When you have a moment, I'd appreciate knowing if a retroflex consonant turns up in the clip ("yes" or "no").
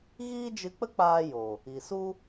no